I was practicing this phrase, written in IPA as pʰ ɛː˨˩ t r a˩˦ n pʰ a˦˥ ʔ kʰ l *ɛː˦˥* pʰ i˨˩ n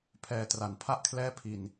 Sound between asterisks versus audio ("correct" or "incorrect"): correct